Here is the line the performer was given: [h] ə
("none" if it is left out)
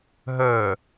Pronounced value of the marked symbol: ɦ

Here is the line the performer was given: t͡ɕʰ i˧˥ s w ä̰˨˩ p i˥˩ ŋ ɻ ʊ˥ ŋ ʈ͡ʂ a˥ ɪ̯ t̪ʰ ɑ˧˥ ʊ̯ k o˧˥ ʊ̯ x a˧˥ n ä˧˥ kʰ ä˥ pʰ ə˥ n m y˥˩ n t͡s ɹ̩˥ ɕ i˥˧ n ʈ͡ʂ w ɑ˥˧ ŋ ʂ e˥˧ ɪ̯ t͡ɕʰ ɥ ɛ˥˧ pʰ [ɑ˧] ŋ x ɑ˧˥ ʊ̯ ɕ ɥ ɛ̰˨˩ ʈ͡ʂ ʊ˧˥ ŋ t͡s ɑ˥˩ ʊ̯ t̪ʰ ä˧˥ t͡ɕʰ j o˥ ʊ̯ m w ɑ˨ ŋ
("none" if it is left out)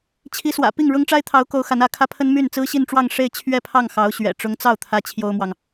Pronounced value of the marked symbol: ɑ˥˩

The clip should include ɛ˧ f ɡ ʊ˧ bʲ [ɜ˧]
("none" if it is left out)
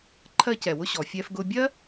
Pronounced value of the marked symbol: ɜ˥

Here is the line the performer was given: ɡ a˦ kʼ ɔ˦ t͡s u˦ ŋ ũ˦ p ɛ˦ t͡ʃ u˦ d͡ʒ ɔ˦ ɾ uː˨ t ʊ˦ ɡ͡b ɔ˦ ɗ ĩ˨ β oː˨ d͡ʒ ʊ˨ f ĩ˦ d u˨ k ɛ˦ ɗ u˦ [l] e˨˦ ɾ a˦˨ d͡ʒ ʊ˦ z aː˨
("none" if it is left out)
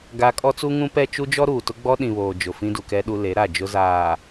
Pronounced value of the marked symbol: l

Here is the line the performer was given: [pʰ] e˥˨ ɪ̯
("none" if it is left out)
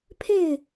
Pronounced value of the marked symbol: pʰ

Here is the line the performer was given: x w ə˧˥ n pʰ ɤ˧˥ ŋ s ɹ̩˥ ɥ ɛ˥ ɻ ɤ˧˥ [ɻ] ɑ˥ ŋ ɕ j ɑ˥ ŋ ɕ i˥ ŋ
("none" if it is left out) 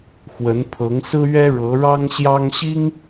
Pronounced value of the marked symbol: ɻ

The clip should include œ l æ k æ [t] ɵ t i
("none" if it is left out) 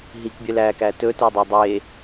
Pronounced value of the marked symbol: t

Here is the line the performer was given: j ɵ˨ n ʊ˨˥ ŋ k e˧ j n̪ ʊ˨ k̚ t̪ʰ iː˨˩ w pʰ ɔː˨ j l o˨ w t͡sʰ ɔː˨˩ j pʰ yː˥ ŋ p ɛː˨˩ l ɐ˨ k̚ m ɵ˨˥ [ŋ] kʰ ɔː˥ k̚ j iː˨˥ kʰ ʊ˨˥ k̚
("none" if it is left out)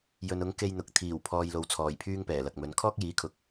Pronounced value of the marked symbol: n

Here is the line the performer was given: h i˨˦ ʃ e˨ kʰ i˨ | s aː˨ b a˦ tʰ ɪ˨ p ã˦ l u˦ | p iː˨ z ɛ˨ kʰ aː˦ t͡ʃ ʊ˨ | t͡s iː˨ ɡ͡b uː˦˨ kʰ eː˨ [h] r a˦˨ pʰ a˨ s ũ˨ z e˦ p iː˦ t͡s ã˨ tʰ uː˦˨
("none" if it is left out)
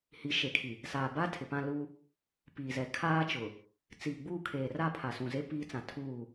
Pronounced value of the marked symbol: none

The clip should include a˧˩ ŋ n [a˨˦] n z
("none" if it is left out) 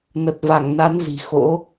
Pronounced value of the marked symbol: a˨˦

